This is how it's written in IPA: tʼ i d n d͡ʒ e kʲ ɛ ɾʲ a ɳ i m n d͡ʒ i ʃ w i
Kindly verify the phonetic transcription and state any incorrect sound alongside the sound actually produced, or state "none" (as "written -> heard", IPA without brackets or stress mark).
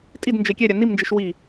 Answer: ɳ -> n